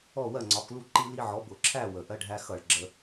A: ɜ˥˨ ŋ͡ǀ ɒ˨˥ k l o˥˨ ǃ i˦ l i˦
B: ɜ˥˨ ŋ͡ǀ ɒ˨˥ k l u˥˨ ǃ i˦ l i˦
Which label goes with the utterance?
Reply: B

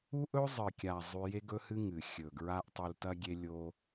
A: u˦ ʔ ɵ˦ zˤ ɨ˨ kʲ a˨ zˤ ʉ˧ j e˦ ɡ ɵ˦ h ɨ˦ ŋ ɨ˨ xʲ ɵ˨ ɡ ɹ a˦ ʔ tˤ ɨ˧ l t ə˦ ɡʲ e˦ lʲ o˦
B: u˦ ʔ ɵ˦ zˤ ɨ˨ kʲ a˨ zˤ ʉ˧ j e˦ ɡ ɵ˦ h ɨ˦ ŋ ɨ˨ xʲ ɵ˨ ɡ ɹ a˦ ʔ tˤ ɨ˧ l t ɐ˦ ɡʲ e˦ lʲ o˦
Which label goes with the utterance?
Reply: B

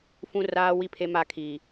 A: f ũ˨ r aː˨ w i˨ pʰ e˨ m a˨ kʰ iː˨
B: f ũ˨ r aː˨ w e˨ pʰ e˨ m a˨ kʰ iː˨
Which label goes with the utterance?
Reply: A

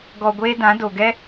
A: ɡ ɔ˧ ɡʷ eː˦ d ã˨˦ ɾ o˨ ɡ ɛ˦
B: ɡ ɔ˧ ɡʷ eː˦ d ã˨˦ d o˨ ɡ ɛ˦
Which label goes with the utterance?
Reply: B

